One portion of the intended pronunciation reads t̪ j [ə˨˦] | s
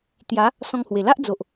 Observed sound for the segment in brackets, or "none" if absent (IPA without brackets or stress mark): a˨˦